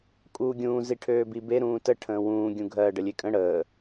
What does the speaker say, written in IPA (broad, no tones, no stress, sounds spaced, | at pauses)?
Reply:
kʼ uː ɡʲ ũː z i ʈʰ øː b i b e ɾ ũː t ə ʈʰ ə̃ː w ũː ɡʲ ũ ɡʱ ɜ ɖ ə lʲ e kʼ ə̃ ɽ əː